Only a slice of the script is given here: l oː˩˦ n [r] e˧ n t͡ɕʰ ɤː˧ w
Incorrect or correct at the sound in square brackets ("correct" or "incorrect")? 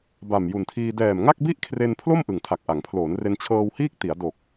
correct